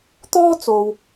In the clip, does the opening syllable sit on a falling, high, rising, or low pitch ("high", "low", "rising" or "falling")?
high